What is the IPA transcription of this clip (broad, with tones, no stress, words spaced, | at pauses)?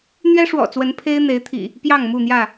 n̪ɥɛ˦ʂwɔ̰˨˩t͡swə˨˦n pʰe˦ɪ̯ n̪e˨˦ɪ̯t̪ʰḭ˨˩ | pjɑ˥˨ŋmu˥˨n̪jä˥˨